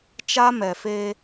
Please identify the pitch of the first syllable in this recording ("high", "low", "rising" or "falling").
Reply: high